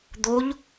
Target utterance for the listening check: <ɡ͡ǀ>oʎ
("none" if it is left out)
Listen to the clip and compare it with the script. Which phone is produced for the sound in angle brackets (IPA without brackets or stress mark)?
d̪